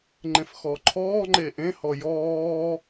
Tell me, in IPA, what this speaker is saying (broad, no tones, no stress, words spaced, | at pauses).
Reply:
ŋ͡ǃẽfxɔːǃʰɔːŋ͡ǃeː ʔẽhɔ jɔː